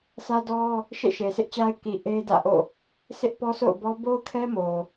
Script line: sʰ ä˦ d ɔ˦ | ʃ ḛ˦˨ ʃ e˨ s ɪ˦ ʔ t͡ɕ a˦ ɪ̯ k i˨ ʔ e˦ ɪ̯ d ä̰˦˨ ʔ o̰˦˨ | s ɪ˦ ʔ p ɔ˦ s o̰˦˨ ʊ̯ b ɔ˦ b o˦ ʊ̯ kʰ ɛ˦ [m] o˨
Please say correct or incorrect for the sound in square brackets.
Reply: correct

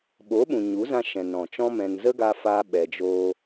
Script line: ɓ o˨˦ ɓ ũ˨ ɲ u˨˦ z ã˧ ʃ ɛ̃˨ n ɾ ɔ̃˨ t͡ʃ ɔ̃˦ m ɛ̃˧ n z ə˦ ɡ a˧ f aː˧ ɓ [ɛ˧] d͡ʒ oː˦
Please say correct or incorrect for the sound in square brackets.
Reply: correct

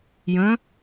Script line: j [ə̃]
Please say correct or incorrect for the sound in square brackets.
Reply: correct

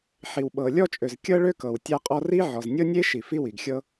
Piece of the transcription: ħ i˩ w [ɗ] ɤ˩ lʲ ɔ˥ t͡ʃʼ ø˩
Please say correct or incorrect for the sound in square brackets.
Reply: incorrect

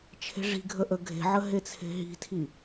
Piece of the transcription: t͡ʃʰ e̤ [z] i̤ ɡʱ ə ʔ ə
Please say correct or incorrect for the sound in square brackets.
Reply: incorrect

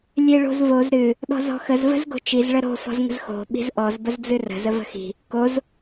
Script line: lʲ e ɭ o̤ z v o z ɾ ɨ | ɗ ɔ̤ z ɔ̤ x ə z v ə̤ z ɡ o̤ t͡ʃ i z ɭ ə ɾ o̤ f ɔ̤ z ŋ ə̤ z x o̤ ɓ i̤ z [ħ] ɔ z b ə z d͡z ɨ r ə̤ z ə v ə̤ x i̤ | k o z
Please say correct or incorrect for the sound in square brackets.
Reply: incorrect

